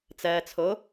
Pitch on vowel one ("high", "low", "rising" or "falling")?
low